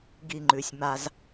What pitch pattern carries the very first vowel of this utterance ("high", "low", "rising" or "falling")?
falling